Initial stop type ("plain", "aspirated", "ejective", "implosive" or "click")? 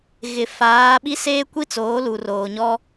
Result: implosive